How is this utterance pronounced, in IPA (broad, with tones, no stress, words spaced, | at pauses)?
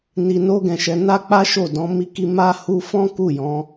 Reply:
ni˧no˦ɡɛ̃˧ʃɛ˧ na˦k͡pa˦ ʃo˦˨ dɔ̃˨˦ mi˧ki˧ ma˦ hu˦ fɔ̃˦ ku˦˨jɔ̃˨˦